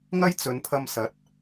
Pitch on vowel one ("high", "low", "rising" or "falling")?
high